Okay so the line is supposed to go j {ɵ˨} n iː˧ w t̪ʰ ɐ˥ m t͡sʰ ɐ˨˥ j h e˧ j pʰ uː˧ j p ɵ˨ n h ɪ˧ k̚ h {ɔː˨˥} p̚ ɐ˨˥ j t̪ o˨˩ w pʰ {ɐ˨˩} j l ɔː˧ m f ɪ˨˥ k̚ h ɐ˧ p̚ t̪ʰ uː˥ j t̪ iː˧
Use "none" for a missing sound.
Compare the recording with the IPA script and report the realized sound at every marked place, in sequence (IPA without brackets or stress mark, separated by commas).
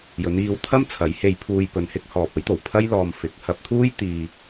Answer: ɵ˨˧, ɔː˨, ɐ˥